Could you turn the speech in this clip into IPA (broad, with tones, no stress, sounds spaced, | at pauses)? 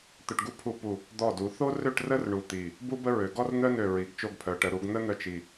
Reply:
t̪ œ˧ ʈ ɡ u˥ pʰ u˧ p u˧˩ | d̪ ɔ˧˩ d u˩˧ θ o˥ r ø˥˧ ʈ r ə˥ r ɳ u˧˩ t̪ i˧˩ | b u˥ b ə˥ ɹ ø˩˧ ɡ ɔ˥ r n̪ œ˥ n ø˧˩ ɹ i˩˧ ɡ t͡ʃ o˧ ɡ pʰ œ˩˧ ʈ ə˩˧ ɾ u˩˧ ɡ n̪ ə˥ n̪ œ˥˧ t͡ʃ i˧